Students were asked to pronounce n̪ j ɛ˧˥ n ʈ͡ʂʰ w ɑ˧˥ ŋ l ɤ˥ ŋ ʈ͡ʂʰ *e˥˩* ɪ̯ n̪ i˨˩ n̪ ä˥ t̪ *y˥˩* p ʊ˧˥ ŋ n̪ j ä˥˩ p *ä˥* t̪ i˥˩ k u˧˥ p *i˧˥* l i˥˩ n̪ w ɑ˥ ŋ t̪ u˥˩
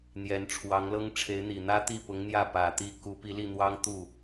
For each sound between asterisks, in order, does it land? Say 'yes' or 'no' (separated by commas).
no, no, no, yes